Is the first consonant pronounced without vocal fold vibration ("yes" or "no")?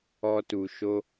yes